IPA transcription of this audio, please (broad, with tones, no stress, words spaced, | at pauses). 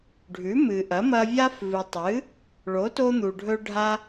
ɖʱʉ˨˥mɨ˨ʔɐ˨˥mɐ˦ vʲa˦fvɨ˨tˤɨ˨˥ | ɭo˨˥to˦n̪u˨ɖʱɵ˦ ɖʱa˦